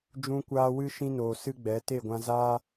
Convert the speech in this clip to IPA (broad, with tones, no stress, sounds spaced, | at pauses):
d͡ʒ ũ˧ kʷ aː˧ w ɨ˦ ʃ ĩ˧ n oː˨ s ɨ˦ ɡ͡b ɛ˨˦ t e˦˨ ɡʷ ã˧ z aː˦